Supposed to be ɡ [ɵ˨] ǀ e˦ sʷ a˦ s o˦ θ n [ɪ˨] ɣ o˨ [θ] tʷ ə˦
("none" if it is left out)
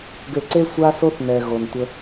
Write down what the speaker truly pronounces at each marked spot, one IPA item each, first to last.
ø˨, ɛ˨, n

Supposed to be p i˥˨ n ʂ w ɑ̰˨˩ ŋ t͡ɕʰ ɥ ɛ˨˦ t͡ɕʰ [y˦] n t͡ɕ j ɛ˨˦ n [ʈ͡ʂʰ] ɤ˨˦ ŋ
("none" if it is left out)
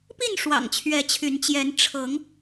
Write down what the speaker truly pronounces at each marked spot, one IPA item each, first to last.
y˨˦, ʈ͡ʂʰ

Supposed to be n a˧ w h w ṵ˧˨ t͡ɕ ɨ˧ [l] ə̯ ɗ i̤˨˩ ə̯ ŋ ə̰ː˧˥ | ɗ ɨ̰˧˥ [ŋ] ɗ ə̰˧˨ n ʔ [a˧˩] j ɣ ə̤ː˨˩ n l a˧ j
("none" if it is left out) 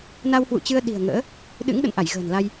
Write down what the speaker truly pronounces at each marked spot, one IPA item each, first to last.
none, ŋ, a˧˩

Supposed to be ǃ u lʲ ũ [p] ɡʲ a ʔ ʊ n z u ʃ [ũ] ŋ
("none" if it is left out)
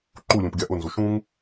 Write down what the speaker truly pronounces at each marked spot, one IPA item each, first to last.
p, ũ

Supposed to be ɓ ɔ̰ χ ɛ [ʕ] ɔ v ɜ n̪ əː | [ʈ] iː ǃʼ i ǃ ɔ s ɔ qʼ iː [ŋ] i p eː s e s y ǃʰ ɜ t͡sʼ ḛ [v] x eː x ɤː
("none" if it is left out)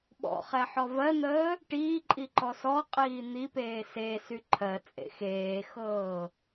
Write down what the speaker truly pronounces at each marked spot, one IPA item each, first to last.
ħ, ʈ, n̪, none

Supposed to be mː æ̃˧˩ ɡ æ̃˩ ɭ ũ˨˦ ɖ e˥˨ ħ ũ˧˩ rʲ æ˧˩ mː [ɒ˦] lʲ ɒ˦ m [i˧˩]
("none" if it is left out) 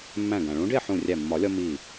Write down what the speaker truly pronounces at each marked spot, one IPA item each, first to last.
ɒ˨˩˦, i˧˩

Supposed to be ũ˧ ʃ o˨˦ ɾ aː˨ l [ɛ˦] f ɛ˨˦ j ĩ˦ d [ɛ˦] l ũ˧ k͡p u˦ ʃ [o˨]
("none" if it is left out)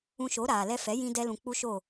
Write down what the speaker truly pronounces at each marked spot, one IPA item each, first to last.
ɛ˧, ɛ˦, o˦˨

